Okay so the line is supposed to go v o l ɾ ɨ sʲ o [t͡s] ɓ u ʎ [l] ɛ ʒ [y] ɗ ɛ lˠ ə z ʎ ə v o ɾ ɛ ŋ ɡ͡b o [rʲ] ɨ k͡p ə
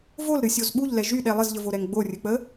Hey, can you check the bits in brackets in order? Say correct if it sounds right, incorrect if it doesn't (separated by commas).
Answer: incorrect, correct, correct, correct